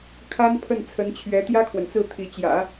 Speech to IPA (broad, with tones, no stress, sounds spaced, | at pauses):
kʰ a˥ n pʰ ə˥˩ n t͡sʰ ə˧˥ n t͡ɕʰ ɥ ɛ˧˥ t̪ j ä˥ kʰ w ə˨ n t͡s ɹ̩˥˩ t̪ʰ i˧˥ t͡ɕ j ä̰˨˩˦